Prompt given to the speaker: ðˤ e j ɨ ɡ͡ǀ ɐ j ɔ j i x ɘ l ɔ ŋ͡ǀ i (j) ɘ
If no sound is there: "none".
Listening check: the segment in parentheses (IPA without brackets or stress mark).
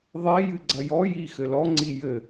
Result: j